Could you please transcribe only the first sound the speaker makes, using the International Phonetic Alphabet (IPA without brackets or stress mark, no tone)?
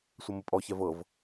sʷ